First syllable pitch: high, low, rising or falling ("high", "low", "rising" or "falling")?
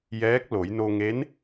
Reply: rising